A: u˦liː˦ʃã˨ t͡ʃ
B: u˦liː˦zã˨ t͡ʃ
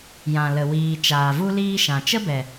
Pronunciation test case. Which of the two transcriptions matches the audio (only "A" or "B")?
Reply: A